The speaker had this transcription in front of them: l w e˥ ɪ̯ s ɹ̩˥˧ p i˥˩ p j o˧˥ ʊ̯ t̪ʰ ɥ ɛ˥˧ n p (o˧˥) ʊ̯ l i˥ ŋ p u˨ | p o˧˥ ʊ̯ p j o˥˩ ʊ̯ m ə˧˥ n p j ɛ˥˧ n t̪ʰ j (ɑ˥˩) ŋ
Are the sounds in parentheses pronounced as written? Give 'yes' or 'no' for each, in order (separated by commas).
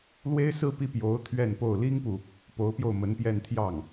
no, yes